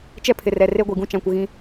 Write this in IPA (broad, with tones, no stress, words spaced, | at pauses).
t͡ʃɛ˦pʰɪ˨rɛ˨ re˦ɡʷi˨ɡũ˦ t͡ʃã˨kʷɪ˨ ɣĩ˦